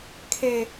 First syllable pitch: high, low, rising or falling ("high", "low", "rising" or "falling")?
low